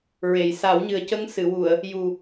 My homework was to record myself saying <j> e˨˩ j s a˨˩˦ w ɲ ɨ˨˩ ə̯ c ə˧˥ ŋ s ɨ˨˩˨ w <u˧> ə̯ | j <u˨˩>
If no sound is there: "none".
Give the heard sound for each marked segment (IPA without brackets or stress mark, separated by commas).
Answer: ɹ, u˨˩˨, u˨˩